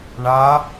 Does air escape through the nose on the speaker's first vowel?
no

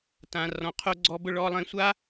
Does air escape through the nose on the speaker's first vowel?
yes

